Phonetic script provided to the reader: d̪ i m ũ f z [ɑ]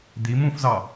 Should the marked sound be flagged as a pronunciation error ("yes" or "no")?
no